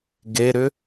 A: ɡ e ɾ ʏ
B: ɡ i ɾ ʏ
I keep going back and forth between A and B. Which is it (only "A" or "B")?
A